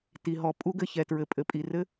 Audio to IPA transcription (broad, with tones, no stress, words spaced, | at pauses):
ti˨ɦɔ˨ pʼu˦ɡɘ˨ çɛ˨tɹɘ˨pʼɘ˨pʼi˨ rɘ˦